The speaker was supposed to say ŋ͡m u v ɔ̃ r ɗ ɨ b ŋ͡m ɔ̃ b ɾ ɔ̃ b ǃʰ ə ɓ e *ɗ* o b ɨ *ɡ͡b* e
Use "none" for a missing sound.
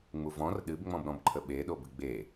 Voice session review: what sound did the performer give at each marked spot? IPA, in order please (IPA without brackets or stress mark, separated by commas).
ɗ, ɡ͡b